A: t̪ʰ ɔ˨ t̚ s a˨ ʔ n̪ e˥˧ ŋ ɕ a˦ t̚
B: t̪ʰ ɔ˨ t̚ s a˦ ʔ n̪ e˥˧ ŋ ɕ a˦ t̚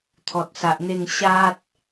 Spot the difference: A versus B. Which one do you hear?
A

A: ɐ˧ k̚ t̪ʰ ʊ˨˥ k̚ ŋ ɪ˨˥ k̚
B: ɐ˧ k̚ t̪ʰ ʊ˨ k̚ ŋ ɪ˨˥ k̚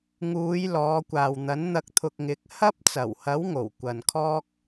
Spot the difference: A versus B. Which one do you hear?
B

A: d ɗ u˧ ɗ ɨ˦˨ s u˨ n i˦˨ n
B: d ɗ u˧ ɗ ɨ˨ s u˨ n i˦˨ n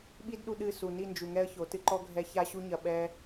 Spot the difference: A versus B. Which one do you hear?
A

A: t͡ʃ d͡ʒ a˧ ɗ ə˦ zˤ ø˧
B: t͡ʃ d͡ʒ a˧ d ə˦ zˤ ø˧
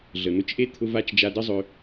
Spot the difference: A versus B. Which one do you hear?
B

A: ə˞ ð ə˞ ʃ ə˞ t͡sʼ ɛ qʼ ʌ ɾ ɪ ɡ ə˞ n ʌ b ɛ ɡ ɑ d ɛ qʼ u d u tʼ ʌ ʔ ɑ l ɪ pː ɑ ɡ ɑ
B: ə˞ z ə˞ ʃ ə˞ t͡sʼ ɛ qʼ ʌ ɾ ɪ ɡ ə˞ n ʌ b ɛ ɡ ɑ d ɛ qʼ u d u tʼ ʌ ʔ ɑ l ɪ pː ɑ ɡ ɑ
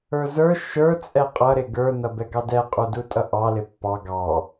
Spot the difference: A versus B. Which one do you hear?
B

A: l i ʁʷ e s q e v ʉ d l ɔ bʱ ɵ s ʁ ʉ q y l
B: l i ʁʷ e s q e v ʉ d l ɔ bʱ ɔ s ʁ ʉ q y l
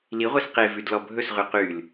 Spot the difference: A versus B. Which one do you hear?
A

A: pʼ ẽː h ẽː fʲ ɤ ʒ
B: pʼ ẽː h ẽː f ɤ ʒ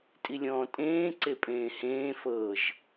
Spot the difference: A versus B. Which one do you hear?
B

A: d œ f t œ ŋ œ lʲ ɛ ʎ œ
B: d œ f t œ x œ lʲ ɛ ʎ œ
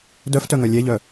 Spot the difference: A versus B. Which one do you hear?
A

